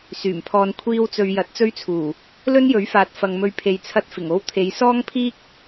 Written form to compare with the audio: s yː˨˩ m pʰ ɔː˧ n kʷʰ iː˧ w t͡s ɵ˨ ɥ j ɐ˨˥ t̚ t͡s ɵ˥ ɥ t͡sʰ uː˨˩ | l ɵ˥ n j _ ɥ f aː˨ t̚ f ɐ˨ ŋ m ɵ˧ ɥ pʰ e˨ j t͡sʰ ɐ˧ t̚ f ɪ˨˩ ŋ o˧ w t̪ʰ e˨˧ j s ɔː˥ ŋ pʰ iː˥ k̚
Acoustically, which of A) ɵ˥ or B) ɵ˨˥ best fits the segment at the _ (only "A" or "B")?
B